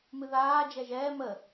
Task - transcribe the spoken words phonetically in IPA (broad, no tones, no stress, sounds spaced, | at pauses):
m ɨ ð aː d͡ʒ ɛ ʒ ɛː m ə